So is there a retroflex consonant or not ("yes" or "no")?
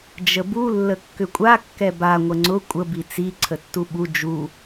no